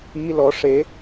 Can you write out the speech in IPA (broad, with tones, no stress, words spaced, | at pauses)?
i˧˥˧lɔ˨˥ ʂe˨˥